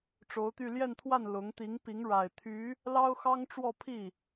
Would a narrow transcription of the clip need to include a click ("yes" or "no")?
no